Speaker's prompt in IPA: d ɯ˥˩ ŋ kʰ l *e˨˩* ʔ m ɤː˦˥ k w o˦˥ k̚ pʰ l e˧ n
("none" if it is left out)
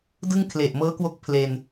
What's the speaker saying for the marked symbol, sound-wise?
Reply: e˨˩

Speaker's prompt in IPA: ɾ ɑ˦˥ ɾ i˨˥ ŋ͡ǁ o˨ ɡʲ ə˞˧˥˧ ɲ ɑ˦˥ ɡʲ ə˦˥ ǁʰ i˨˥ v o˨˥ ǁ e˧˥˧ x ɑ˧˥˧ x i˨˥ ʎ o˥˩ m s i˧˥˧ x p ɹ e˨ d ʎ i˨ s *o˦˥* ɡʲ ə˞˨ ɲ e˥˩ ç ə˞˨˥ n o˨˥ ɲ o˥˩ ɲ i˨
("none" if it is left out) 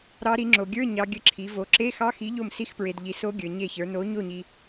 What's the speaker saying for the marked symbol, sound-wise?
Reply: o˦˥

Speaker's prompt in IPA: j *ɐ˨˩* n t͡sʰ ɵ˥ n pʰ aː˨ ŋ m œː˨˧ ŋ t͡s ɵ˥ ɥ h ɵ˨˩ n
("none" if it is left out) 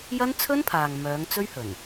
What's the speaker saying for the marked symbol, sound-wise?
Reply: ɐ˥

